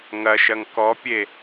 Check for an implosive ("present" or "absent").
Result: absent